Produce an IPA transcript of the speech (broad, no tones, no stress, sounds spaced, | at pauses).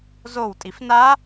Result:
z o w tʼ i f n a